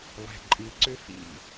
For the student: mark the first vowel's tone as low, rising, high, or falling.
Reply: low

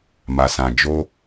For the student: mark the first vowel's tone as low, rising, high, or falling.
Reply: low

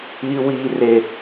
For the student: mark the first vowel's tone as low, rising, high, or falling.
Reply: high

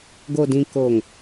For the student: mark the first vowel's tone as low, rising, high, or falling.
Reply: low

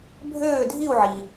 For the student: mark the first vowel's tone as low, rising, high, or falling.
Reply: falling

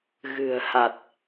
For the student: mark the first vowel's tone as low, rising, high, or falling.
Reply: low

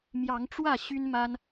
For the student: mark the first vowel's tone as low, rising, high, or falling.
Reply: rising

